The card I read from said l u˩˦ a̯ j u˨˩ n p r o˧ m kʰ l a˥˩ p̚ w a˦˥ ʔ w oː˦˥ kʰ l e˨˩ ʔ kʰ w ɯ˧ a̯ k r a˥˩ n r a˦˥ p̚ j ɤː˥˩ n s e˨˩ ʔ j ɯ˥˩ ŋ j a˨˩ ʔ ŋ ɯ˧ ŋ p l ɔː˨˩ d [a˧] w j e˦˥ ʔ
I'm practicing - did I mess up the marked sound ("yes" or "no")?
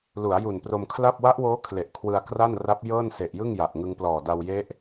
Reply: no